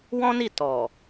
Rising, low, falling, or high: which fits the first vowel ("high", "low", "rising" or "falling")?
high